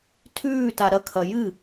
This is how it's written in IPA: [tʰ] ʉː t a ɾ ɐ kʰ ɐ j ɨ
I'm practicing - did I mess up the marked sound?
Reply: no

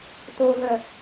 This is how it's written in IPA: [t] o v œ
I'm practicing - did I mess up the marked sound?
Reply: no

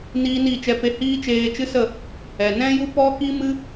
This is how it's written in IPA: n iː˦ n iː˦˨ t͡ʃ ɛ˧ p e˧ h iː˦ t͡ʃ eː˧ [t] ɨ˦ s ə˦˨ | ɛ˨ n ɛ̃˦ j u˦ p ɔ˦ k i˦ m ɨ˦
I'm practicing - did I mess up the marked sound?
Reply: yes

